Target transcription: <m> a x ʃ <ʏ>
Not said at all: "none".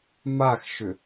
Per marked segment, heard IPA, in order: m, ʏ

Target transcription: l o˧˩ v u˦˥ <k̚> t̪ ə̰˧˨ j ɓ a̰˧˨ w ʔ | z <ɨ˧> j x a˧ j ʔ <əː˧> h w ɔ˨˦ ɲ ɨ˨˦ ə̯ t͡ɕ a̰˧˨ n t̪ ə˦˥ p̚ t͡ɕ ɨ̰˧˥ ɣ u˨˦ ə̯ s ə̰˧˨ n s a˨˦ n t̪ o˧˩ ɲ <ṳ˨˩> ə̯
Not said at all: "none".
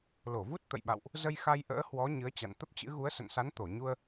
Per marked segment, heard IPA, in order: t̚, ə˧, ə̰ː˧˥, u˧

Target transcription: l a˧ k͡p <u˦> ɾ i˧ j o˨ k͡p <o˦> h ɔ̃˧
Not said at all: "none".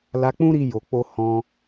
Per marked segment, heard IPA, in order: ũ˦, o˧

